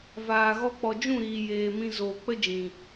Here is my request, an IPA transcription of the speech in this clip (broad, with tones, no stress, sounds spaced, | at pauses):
v aː˨ ɣ ɔ˦ k͡p ɔ˧ d͡ʒ ũ˦˨ ɾ iː˨ j eː˨ m ĩ˧ z oː˨ k͡p ə˦ d͡ʒ ĩ˨